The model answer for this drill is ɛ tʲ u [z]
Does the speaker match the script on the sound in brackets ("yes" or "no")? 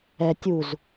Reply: yes